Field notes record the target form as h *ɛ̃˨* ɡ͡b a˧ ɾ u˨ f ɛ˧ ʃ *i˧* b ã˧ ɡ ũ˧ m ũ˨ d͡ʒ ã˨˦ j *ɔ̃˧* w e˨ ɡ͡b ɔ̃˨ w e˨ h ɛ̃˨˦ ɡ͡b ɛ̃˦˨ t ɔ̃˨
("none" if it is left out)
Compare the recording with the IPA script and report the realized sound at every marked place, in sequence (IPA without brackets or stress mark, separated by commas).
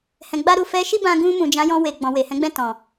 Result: ɛ̃˨, i˦, ɔ̃˧